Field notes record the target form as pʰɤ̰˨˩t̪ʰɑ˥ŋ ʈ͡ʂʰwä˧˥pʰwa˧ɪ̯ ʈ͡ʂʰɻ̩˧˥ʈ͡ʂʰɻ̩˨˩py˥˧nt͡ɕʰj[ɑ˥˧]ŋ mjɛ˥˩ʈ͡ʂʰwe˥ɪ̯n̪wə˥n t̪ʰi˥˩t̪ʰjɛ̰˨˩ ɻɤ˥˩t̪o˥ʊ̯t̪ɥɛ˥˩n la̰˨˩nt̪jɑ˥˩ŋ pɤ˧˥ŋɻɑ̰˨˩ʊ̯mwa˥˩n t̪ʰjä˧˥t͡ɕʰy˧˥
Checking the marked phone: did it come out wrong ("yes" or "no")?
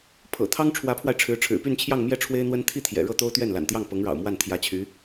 no